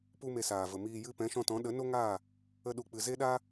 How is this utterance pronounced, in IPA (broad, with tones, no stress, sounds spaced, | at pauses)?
p u˦ m e˧ s aː˨ v ə˨ m iː˧ j ɨ˦ p ɛ̃˨˦ ʃ ɔ̃˧ t ɔ̃˨˦ ɗ ə˨˦ n o˦ ŋ aː˦˨ | ə˦ ɗ u˧ k͡p ɨ˧ z e˦ ɗ a˦